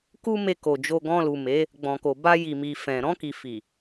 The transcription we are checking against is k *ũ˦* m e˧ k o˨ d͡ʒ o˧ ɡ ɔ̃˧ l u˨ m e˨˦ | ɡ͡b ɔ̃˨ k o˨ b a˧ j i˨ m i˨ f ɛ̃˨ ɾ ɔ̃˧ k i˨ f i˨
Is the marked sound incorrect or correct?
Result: incorrect: u˦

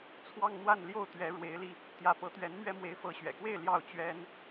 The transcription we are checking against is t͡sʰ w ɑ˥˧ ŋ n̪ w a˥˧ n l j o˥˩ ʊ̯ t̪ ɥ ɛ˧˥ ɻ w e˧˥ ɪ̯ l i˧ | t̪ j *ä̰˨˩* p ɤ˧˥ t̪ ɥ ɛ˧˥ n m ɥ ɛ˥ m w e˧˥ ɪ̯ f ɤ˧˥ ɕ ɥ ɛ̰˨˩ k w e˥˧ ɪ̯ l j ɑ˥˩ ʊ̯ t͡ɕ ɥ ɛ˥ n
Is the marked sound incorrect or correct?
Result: incorrect: ä˧˥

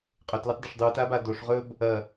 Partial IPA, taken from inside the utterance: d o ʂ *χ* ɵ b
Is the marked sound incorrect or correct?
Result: incorrect: ʁ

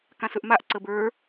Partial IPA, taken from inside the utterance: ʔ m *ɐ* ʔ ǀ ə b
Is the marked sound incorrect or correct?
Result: incorrect: a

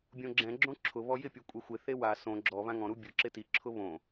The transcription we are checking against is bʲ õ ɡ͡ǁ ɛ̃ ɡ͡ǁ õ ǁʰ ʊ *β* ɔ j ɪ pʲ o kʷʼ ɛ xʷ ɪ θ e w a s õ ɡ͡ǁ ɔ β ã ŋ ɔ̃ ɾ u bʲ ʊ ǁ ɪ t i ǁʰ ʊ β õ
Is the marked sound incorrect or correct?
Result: correct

